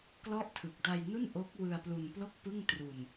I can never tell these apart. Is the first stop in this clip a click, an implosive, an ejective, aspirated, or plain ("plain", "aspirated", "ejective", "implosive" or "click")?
plain